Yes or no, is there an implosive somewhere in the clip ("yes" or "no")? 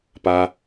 no